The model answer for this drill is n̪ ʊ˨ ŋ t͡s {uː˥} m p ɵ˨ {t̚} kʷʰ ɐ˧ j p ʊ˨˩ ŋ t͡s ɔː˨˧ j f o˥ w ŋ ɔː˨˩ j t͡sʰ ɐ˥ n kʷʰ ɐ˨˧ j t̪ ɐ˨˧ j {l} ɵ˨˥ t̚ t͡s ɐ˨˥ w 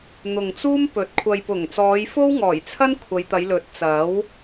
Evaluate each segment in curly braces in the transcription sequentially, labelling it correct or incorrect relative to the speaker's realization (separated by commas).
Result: correct, correct, correct